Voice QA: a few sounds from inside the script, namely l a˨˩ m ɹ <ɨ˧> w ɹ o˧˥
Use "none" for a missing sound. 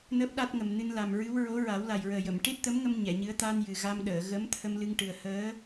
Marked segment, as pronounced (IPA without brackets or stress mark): ɨ˧˥